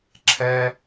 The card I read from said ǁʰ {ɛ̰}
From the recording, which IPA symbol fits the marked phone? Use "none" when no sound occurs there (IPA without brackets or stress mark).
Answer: ɛ